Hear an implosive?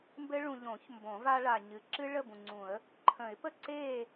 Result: no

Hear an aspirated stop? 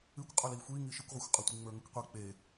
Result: no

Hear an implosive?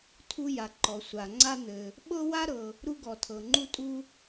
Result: yes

